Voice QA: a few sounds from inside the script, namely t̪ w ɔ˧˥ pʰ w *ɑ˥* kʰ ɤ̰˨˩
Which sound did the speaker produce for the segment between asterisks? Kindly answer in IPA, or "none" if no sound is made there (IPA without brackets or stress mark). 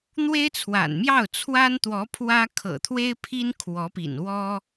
ä˥